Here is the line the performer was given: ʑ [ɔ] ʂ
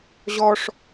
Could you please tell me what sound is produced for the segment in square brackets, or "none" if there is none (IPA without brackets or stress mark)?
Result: ɔ